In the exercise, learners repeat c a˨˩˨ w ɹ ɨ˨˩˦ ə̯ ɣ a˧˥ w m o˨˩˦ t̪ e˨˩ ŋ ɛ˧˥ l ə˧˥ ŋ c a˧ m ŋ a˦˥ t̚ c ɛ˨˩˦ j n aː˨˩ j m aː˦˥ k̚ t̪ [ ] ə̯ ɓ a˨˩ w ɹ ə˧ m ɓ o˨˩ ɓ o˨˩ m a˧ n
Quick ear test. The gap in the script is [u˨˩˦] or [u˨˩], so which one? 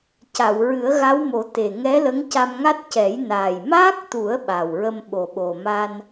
u˨˩˦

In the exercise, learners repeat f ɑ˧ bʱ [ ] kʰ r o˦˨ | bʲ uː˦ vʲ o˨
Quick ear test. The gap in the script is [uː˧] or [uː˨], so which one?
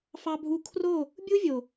uː˧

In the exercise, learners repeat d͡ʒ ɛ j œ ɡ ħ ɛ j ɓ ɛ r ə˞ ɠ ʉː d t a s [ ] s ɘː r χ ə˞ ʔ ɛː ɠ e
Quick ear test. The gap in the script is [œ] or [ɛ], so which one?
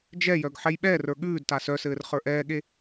œ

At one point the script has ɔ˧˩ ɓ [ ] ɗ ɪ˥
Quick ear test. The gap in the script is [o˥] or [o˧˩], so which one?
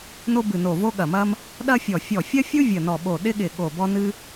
o˧˩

